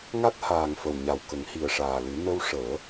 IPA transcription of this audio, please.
ŋ a˦˥ t̚ h aː˨˩ ŋ f ə˨˩ w ɲ a˨˩ w k ə˨˩˦ ŋ h i˨˩ ə̯ ʂ aː˨˩ l ɨ˨˩˦ n ə˧ w ʂ əː˨˩˦

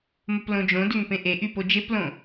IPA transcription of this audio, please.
m ə p l õ d͡ʒ õ d ʏ ŋ p ẽ ʔ e ʔ y p o d͡ʒ e p l õ

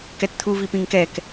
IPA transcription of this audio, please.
k ɛ t t̪ʰ u v i p ĩ ŋ k ɛ k

